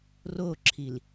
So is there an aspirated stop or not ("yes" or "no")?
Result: yes